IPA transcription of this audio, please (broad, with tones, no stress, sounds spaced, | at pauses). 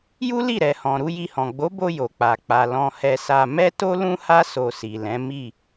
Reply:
j u˦ l i˦˨ ɾ ɛ˨ h ɔ̃˨ ɾ u˨˦ j i˧ h ɔ̃˨ ɡ͡b o˨˦ b o˧ j o˨ k͡p a˨ k͡p a˨ l ɔ̃˧ h ɛ˧ s a˧ m ɛ˦ t o˦ l ũ˦ h a˦ s o˧ s i˨ l ɛ̃˨˦ m i˦˨